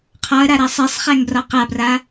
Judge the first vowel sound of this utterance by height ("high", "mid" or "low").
low